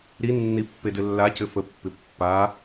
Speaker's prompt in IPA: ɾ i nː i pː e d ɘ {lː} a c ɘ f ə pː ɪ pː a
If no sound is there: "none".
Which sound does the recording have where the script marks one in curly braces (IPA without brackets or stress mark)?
lː